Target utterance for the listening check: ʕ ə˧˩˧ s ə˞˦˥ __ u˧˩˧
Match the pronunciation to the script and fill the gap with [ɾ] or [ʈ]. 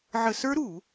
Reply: ɾ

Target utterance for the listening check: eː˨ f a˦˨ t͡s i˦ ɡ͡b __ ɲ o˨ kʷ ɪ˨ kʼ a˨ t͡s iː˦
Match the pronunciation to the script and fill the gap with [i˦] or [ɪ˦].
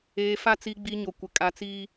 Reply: i˦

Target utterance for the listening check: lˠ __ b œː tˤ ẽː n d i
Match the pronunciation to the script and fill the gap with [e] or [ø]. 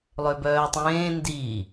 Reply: ø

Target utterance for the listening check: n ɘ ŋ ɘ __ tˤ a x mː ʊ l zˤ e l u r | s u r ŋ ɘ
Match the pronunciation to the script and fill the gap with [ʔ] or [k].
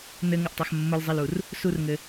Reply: ʔ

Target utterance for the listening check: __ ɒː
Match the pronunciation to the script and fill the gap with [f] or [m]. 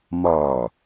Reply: m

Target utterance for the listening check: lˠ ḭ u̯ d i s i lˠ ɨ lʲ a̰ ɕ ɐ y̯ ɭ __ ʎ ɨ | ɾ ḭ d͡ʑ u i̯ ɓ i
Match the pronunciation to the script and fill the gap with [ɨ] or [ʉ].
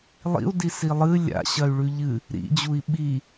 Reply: ʉ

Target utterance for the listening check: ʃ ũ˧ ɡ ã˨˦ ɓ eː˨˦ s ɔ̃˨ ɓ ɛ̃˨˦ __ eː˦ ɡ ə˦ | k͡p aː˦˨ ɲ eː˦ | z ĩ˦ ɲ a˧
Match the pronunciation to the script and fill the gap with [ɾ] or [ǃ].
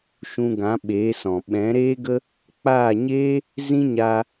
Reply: ɾ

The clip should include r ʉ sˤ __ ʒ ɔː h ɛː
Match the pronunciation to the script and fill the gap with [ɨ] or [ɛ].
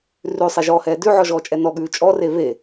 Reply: ɛ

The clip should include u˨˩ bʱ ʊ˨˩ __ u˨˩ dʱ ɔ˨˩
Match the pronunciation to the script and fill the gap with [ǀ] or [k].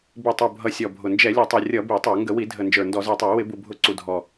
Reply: ǀ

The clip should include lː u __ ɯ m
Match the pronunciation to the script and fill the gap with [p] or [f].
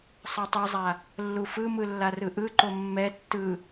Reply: f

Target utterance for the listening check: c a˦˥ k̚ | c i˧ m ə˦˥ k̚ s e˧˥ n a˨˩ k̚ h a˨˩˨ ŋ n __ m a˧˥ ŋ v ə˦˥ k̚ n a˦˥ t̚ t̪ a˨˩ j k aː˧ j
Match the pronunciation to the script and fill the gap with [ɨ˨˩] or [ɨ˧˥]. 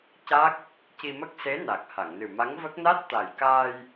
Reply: ɨ˨˩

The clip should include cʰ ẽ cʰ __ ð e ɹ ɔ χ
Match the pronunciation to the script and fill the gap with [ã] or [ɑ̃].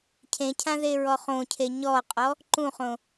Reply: ã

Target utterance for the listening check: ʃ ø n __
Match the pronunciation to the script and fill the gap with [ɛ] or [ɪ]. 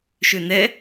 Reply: ɛ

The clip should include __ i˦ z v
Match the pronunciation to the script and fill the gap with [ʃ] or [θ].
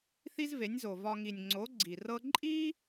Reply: θ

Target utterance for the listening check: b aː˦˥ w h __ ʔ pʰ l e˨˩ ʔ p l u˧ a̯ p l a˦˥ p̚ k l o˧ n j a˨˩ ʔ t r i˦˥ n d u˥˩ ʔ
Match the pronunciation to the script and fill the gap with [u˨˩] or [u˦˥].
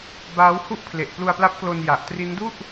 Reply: u˦˥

